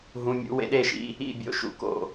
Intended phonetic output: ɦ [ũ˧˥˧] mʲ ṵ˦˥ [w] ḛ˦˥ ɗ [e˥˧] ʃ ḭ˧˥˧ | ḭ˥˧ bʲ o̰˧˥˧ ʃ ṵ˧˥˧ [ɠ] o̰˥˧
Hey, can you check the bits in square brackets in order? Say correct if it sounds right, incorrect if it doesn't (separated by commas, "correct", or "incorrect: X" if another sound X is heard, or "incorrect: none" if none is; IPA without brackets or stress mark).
correct, correct, correct, incorrect: k